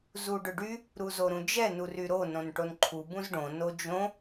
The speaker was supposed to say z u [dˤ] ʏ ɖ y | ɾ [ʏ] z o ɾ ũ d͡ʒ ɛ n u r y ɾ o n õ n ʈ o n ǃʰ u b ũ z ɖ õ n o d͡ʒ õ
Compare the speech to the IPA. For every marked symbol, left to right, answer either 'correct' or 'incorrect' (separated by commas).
incorrect, incorrect